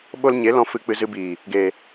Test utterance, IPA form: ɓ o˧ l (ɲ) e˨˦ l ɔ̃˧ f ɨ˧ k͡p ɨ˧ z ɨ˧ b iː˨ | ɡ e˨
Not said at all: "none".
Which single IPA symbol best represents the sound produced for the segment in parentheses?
ɲ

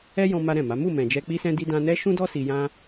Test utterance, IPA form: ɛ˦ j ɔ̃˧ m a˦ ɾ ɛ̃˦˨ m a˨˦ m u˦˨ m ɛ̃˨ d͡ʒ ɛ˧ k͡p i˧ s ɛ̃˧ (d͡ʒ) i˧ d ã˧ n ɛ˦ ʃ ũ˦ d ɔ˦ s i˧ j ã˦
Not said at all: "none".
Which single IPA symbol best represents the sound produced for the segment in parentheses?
d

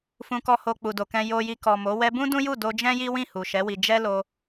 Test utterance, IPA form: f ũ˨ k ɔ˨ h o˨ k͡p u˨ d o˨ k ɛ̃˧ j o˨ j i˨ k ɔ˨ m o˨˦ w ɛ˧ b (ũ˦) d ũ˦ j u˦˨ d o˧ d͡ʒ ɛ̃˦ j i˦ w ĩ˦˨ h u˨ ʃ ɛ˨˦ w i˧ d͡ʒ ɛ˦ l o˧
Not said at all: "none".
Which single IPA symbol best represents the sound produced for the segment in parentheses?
ũ˦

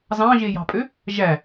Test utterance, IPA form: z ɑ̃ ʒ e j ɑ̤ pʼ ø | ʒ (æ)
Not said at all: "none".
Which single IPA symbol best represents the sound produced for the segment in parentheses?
æ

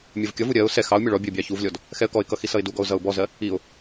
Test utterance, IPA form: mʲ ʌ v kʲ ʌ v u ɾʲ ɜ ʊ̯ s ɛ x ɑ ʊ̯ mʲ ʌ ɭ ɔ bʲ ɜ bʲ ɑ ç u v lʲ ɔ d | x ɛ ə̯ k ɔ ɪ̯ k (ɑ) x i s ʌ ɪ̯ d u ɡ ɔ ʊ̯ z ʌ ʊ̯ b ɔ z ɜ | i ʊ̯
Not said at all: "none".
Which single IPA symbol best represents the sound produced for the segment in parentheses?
ʌ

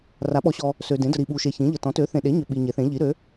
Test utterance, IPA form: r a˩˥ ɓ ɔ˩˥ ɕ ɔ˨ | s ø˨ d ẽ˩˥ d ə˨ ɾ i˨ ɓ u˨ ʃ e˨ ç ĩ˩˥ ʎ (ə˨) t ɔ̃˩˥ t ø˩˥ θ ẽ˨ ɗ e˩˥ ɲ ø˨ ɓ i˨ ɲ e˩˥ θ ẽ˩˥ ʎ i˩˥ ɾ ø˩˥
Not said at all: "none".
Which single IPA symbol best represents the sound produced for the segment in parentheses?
ə˨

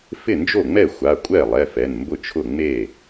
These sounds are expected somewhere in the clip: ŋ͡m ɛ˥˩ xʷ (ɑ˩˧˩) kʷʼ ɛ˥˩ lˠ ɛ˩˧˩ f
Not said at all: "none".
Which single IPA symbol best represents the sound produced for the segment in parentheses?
a˩˧˩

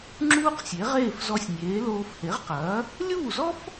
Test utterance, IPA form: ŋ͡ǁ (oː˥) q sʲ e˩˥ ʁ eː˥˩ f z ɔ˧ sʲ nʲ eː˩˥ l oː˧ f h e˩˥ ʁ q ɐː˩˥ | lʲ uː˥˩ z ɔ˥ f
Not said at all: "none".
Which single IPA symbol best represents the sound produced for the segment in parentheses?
uː˥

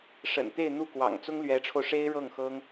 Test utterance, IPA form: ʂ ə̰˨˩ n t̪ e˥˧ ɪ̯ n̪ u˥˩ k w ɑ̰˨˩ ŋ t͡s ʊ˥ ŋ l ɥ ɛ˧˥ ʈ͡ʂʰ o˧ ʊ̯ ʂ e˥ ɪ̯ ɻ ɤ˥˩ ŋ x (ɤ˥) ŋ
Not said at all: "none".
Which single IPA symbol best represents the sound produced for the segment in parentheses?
ɤ˥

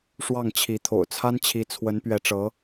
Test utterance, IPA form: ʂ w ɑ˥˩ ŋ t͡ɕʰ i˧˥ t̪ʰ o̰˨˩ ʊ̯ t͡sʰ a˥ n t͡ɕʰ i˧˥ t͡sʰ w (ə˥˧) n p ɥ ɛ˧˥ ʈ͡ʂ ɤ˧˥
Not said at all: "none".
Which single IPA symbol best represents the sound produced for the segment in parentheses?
ə˧˥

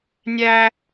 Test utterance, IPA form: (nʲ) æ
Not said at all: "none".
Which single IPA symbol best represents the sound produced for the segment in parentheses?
nʲ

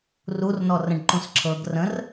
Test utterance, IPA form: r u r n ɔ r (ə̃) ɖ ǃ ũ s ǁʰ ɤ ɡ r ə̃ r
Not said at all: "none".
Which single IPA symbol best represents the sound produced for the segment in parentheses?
ə̃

